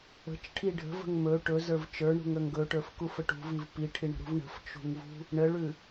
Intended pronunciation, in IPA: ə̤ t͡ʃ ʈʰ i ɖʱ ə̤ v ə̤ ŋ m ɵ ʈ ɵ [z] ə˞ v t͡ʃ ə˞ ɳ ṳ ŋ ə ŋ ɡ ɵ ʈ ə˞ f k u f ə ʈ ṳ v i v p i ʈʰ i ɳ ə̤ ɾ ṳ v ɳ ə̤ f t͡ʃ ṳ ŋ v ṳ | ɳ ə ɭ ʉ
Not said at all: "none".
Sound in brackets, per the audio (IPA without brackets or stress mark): z